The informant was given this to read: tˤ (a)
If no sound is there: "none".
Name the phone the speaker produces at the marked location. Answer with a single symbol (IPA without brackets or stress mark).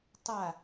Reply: a